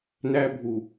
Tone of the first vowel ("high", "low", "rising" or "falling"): high